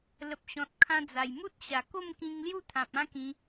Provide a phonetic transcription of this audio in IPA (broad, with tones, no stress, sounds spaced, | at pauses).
l ə˨ p̚ ɕ ɔ̃˨ t̚ kʰ ã˧ d͡z a˨˩ j m u˦ t̚ ɕ a˨˩ k o˥˧ m k ĩ˧ ŋ l j u˥˧ t̪ʰ ã˨ p̚ ã˦ k ĩ˧